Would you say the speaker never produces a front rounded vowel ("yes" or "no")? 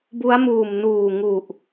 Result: yes